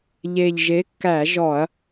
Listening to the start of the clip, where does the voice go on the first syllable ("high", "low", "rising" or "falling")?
low